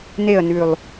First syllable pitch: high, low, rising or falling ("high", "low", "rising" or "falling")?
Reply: falling